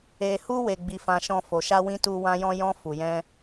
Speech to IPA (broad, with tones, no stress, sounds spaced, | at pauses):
e˧ h u˦ w e˧ ɡ͡b i˧ f ã˧ ʃ ɔ̃˧ f o˨ ʃ a˧ w ĩ˧ t u˧ w ã˧ j ɔ̃˧ j ɔ̃˧ f u˨ j ɛ̃˧